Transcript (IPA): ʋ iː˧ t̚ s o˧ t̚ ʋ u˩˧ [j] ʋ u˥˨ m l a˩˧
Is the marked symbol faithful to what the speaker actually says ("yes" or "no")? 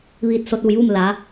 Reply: yes